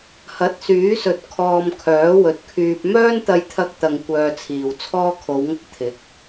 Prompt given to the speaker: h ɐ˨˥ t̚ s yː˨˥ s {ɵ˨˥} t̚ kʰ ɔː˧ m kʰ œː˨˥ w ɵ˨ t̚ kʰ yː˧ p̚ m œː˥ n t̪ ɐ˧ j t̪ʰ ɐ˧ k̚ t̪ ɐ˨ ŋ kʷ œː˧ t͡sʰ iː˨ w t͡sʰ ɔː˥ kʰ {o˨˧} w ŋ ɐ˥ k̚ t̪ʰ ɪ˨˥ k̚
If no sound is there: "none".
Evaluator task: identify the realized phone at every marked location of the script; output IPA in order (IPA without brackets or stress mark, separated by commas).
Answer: ɵ˨, o˨˧